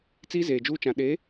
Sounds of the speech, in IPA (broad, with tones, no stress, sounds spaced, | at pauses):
t͡s iː˦ z eː˨ d͡ʒ uː˦ t͡ʃ ã˨ ɗ eː˨˦